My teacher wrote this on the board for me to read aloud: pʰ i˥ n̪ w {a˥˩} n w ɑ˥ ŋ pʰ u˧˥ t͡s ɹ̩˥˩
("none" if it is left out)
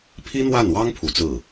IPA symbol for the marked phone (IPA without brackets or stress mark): a˥˩